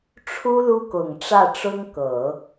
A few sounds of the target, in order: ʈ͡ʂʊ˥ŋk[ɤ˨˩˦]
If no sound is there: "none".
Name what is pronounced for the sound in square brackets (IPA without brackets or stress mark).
ɤ˨˩˦